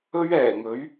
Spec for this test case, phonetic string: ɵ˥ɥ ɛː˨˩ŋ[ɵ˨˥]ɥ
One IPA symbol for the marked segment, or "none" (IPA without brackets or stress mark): ɵ˨˥